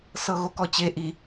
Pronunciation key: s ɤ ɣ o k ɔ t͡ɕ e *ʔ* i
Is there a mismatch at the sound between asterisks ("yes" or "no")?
no